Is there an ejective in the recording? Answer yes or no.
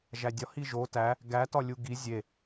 no